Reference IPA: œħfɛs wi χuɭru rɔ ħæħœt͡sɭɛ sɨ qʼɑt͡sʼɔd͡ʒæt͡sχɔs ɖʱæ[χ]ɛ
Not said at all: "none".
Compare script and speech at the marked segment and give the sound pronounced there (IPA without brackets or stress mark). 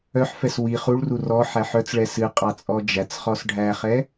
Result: χ